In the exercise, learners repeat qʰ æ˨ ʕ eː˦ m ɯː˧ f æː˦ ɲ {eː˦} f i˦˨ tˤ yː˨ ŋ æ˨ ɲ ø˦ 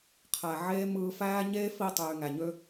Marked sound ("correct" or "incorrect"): correct